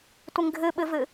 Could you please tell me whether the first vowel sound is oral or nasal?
oral